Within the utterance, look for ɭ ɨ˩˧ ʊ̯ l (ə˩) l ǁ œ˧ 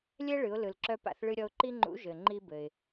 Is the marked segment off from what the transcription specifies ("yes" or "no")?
yes